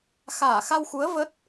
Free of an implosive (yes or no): yes